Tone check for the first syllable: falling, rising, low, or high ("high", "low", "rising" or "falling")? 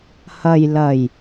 low